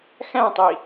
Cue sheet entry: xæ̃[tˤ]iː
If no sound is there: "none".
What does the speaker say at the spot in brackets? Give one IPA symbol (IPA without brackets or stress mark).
tˤ